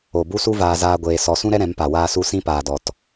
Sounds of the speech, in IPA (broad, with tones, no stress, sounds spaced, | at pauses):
o˨ b u˦ s u˦ v aː˧ z aː˦ ɡʷ eː˧ s ɔ˧ s ũ˦ ɾ ɛ˦ ɾ ɛ̃˨˦ m p a˨ w aː˦ s u˦ s ĩ˦ p aː˨ d ɔ˨ t